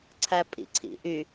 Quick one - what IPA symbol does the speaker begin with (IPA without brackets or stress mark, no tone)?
ǀʰ